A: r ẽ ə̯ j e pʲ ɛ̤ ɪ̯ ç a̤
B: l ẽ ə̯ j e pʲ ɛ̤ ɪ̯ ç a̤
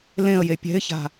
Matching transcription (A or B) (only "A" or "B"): B